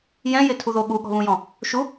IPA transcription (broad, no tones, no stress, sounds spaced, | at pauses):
j ɛ̃ j ɪ tʰ u ð o ɠ u ɠ ɔ̤ β ũ j ɔ̃ | ʃ u